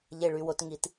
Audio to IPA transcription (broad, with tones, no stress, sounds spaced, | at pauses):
ʎ e˨ ɭ y˨ w o˨ t ŋ i˨ t